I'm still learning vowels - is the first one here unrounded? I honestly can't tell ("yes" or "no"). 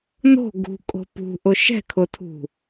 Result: no